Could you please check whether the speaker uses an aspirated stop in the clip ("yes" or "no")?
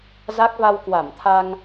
yes